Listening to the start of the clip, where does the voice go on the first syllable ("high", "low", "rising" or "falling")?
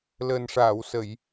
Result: low